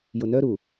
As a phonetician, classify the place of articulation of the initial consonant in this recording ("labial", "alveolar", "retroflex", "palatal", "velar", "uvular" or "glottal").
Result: palatal